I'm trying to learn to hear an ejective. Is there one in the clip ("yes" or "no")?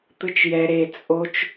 yes